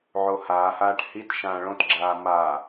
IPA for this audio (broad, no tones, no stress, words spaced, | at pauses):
ʕohaːhaːʈ hit ʃãːɭõtɡ͡ǁaː maː